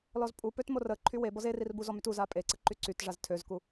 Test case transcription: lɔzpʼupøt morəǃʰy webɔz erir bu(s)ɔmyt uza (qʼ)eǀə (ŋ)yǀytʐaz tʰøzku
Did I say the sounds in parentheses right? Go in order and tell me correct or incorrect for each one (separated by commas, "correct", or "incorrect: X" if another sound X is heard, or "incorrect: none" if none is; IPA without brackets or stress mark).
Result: incorrect: z, incorrect: pʼ, incorrect: ǃ